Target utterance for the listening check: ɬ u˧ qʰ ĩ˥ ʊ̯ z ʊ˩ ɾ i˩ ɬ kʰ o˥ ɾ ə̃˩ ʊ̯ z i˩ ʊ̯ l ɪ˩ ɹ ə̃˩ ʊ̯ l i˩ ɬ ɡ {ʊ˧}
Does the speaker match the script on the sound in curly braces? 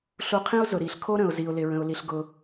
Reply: no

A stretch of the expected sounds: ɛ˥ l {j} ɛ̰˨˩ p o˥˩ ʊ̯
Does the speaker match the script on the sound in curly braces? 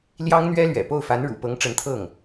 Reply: no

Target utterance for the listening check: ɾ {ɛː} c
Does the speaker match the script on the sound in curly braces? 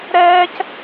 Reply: yes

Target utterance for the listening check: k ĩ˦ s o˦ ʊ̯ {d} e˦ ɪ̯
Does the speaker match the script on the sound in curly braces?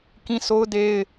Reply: yes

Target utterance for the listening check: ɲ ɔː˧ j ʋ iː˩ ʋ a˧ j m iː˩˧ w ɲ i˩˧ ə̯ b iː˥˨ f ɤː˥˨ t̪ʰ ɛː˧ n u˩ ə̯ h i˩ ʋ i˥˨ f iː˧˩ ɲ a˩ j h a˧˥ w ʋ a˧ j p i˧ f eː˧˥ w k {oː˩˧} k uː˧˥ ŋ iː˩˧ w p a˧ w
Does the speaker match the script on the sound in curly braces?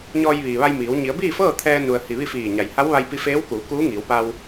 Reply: no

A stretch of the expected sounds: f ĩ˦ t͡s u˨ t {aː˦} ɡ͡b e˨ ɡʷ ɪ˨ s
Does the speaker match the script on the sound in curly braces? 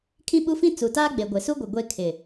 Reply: yes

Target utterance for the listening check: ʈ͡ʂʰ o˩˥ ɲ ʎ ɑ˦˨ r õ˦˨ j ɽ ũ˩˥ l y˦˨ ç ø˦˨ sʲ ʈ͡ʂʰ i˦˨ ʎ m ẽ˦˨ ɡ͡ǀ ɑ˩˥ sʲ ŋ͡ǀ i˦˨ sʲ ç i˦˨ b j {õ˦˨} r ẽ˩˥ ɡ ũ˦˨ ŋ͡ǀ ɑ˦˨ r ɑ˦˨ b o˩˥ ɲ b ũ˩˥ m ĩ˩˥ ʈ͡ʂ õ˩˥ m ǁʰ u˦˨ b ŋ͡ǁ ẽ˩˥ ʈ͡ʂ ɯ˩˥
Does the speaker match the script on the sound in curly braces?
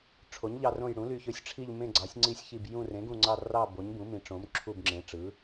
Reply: no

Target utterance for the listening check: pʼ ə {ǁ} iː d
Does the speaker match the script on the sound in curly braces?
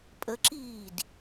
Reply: yes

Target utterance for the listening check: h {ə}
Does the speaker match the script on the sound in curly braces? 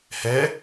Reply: no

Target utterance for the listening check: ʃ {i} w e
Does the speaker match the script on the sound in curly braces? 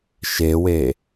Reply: no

